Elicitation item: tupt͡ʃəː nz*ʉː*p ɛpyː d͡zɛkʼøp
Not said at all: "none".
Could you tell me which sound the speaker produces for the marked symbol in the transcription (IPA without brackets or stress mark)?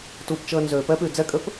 øː